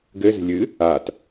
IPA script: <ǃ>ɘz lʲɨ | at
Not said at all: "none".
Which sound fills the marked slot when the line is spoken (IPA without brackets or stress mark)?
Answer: ɡ